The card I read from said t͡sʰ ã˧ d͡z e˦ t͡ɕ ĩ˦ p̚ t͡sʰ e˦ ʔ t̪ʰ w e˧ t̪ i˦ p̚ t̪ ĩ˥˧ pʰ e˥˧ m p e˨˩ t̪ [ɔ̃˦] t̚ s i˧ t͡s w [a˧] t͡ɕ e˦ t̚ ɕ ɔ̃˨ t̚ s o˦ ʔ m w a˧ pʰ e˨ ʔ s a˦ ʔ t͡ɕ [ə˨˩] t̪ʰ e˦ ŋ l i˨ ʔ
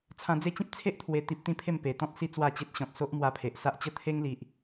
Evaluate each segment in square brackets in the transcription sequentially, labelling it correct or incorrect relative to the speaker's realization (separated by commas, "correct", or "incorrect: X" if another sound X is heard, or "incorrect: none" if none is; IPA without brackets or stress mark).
correct, incorrect: a˥˧, incorrect: ə˥˧